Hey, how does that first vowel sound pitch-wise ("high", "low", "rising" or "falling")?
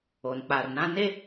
low